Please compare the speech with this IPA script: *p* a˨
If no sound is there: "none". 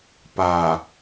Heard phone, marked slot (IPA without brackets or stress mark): p